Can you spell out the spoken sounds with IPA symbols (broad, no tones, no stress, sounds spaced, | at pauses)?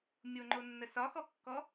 mʲ o ŋ͡ǃ o nː ə s ɒ x ɔ kː ɔ